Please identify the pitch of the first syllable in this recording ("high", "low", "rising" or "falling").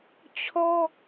high